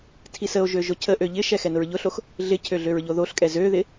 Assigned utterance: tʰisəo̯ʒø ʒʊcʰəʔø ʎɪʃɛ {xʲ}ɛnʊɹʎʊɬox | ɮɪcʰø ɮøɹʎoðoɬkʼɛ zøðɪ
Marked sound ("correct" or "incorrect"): incorrect